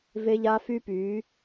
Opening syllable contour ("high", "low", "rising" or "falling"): high